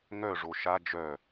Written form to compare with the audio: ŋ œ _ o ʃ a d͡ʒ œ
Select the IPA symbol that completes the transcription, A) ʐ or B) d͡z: A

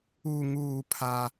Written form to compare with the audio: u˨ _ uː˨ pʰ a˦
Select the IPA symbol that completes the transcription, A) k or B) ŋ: B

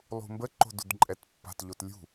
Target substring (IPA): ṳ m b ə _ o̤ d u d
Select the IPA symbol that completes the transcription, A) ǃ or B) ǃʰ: A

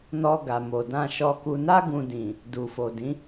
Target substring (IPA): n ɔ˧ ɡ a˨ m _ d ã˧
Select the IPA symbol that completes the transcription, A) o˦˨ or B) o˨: B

